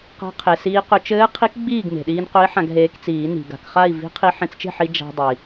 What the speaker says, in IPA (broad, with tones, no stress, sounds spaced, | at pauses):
q a̤˧˥ qʰ e˩ s iː˧ q ɵ˧ t͡ʃ ɘː˧˥ qʰ i˧˥ k ɡ͡b iː˥˨ ɡ m e̤˩ ɗ iː˧ n q ɵ˧˥ i̯ ħ ã˧ ɡ ɦ eː˧ k t͡s iː˨˩˦ n i̤˩ ɡ a̤˩ k χ a˥˨ i̯ v i̤˧˥ qʰ i˧ ħ ẽ˧ t͡s t͡ʃ e̤˥˨ ħ i˧ d͡ʒ a̤˧ dˤ i˩